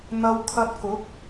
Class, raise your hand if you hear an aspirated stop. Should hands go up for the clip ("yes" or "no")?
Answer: yes